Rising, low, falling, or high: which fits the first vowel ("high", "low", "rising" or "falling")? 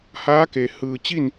rising